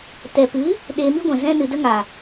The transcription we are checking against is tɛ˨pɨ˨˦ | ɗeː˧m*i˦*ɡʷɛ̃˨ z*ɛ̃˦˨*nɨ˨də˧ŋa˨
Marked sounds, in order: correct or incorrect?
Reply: correct, incorrect

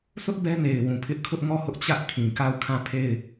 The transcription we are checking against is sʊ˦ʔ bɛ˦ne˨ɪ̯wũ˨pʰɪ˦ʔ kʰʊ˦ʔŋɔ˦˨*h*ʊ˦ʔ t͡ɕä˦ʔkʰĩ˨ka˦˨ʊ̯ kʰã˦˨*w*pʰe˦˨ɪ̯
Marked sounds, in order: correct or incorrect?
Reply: correct, incorrect

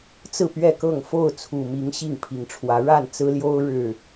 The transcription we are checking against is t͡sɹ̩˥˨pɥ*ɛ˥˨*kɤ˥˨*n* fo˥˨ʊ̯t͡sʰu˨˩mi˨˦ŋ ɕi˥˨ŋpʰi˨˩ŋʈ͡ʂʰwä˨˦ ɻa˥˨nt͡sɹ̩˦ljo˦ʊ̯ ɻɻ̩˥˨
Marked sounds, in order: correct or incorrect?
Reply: correct, incorrect

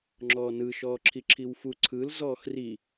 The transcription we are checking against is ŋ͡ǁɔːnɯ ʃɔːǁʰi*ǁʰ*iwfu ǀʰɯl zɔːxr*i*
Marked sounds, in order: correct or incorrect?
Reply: correct, correct

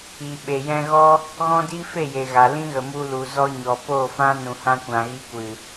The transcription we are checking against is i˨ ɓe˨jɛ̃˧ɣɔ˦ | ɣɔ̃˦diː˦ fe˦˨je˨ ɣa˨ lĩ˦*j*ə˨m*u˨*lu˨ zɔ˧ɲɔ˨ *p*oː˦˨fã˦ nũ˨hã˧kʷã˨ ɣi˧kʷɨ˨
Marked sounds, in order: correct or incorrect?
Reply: incorrect, incorrect, correct

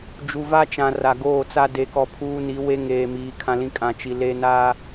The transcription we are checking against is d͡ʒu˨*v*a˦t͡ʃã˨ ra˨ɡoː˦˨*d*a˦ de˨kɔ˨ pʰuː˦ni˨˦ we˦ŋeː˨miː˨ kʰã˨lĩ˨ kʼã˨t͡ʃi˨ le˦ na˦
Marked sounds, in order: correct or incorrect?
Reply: correct, incorrect

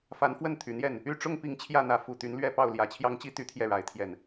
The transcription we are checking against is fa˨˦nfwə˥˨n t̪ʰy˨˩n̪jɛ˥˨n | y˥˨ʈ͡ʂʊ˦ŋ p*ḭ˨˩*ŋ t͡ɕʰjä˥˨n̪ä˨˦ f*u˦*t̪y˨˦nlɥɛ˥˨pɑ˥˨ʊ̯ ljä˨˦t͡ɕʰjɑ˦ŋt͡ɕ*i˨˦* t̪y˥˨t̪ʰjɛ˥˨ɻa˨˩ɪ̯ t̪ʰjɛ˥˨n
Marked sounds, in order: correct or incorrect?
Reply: incorrect, incorrect, incorrect

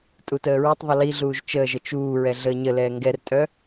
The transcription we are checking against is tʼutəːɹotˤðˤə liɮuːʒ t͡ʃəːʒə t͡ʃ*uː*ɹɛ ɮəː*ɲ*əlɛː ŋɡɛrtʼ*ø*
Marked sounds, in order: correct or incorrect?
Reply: correct, correct, incorrect

